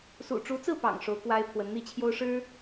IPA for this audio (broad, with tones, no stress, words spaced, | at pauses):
sṵ˨˩ʈ͡ʂu˧˥t͡sɹ̩˥˩pɑ̰˨˩ŋ ʂo˧˥ʊ̯kwa˥ɪ̯pʰwə˧˥n n̪i˥˩t͡ɕʰjo˥ʊ̯ʂɻ̩˥